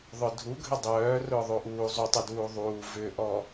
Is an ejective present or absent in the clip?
absent